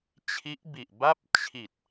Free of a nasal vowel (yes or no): yes